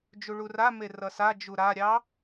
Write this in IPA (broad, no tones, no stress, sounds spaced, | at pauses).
d͡ʒ u ɭ u r a m e r ʌ s a d͡ʒ u ɾ a ɾʲ ɑ